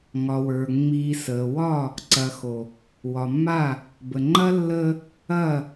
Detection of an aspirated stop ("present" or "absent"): absent